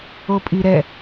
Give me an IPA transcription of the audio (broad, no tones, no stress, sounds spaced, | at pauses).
o pʼ i ɾ ɛ